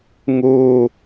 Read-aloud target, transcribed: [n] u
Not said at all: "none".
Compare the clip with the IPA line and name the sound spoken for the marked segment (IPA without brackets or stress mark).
ŋ